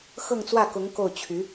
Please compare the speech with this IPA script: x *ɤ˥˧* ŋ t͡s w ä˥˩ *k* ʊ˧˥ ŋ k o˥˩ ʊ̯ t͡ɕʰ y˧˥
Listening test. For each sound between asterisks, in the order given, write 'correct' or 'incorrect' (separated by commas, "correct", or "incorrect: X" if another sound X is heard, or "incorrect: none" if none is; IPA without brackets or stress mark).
correct, correct